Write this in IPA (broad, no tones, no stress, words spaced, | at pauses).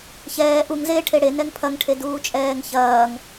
çɛː ʔuŋzeː ʈʰeɽe nɛŋpʰɐŋʈʰe duːt͡ʃʼɛːŋçɐːŋ